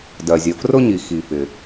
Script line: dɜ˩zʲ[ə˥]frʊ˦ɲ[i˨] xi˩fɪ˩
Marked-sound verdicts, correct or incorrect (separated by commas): incorrect, incorrect